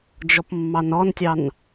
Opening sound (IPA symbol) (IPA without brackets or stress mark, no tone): d͡ʒ